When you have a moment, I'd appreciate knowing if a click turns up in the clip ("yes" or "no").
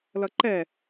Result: yes